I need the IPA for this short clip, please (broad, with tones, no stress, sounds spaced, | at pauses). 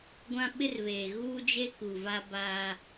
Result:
ɡʷ ã˦ ɓ ɪ˦ r β eː˨ ɣ uː˦ d͡ʒ e˦ k u˨ v a˦ b aː˦